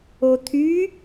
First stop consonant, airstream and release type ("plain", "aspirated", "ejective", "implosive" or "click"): aspirated